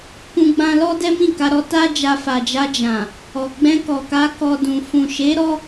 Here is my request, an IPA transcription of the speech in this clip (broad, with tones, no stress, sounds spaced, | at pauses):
k ũ˦ ɡ͡b ã˦ l ɔ˦ d ɛ˦ m ĩ˦˨ k a˧ ɾ ɔ˧ t a˦ d͡ʒ a˧ f a˨ d͡ʒ a˧ d͡ʒ ã˨ | ɔ˨ ɡ͡b ɛ̃˧ k ɔ˨ k a˧ k ɔ˧ d ũ˨ f ũ˨ ʃ e˨˦ ɾ ɔ˧